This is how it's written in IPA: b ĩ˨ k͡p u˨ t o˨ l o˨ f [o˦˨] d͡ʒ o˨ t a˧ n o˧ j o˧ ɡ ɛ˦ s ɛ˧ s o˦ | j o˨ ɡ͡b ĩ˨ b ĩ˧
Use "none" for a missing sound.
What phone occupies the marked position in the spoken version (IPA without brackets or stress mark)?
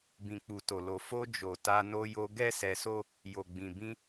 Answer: o˧